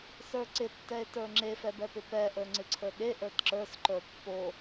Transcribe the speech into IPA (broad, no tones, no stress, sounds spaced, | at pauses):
s ə˞ ǀ ɪ tː ɛ e̯ t ə˞ ŋ͡ǁ e f ɛ b ɛ p ɪ p ɛ ʔ ə˞ ŋ͡ǀ ɪ ǀʰ ə˞ ɠ e ʔ ə˞ t ǁ ə˞ s ǃ ə˞ pː o